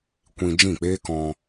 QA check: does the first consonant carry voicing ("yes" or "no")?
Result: no